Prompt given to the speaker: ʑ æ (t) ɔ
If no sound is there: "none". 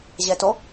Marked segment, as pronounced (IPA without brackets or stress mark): t